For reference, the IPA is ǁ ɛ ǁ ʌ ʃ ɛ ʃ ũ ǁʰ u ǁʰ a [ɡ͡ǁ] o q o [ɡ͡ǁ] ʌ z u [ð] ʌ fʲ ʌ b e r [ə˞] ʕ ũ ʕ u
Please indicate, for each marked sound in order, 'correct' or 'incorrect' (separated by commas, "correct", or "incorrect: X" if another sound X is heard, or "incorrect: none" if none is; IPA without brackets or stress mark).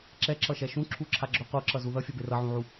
correct, incorrect: ǁ, correct, incorrect: ʌ